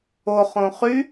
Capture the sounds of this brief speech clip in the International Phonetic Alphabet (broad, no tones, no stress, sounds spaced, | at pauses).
o χ õ χ y